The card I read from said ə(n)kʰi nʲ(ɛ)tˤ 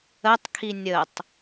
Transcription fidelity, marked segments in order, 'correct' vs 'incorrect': incorrect, incorrect

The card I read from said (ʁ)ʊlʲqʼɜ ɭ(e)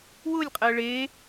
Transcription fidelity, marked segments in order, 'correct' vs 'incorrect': incorrect, correct

